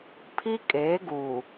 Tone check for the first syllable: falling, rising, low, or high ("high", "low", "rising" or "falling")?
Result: high